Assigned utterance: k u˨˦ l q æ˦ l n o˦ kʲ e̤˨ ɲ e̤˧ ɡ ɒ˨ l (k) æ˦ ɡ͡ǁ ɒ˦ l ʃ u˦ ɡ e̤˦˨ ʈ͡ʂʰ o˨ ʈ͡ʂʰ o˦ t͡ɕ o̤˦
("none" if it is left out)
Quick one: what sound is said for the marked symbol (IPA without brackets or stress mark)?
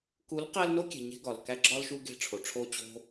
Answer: k